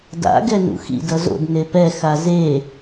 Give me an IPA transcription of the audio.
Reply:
d a̰ ɡ ɛ n ṵ x ḭ d ʌ z o̰ d n e p ɛ x a z e

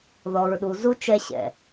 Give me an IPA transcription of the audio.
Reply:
ð ɔ˨ ɹ ɗ u˨ z u˦ t͡ʃ ɛ˦ ɕ ɛ̰˨

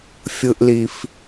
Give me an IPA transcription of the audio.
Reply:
fʲ ɯ˨ ʔ l i˨ f

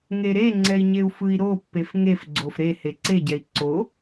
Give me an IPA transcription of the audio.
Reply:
ŋ e ɾ e ŋ͡ǀ ɛ i̯ ɲ e u̯ f ɯ i̯ ɾ o pː e f ŋ e f ɡ͡ǀ o f ɾ e h e ǀ e ɟ ɛ i̯ ǀ o

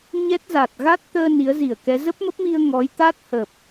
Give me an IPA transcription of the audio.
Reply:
ɲ ɛ˦˥ t̚ z a˨˩ t̚ ɣ a˦˥ t̚ t̪ əː˧ n i˨˦ ə̯ z i˧˩ ə̯ k ɛ˨˦ z ə˦˥ p̚ m ə˦˥ p̚ m i˧ ə̯ ŋ ɔ˨˦ j t̪ a˦˥ t̚ h ə˨˩ p̚

